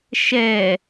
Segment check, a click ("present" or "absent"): absent